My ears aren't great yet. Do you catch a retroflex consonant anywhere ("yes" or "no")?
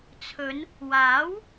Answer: no